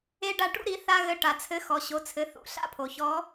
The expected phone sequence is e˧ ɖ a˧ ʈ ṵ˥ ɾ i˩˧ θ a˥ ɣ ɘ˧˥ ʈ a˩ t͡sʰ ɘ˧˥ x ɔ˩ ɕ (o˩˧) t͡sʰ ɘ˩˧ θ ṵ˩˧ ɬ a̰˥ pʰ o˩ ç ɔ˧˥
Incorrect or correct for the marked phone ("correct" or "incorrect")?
correct